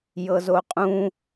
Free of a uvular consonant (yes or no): no